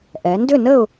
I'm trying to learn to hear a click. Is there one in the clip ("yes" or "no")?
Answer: no